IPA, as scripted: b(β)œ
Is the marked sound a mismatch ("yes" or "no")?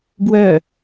yes